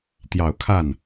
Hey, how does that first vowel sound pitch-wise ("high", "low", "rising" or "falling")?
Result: low